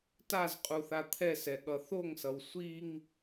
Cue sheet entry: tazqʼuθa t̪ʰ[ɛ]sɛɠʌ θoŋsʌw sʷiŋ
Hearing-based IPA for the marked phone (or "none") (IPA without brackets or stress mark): ɛ